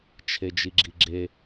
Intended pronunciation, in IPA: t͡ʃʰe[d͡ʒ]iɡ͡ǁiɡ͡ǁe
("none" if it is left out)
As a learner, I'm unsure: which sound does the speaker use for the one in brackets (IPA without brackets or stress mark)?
d͡ʒ